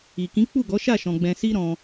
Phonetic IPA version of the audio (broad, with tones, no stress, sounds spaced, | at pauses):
i˨ k ĩ˨˦ k͡p u˦˨ ɡ ɔ˨˦ ʃ a˦˨ ʃ ɔ̃˧ ɡ͡b ɛ̃˧ s i˦ ɾ ɔ̃˧